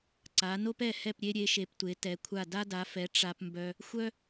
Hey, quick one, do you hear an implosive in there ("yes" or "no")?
no